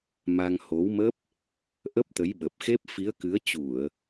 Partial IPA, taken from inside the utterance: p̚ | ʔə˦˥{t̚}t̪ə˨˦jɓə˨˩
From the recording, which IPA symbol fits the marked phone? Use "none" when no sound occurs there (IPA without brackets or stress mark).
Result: p̚